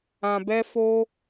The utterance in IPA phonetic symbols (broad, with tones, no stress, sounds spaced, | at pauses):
ã˧ b ɛ˦ f o˦